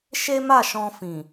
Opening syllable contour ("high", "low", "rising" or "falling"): high